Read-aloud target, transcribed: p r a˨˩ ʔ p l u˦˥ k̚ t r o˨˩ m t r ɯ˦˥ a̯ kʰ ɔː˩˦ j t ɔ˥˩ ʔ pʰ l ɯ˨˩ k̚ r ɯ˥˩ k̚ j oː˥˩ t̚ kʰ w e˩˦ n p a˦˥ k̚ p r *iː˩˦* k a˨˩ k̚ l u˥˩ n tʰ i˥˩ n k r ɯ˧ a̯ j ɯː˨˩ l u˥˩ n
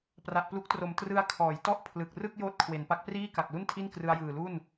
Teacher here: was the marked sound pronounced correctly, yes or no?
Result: no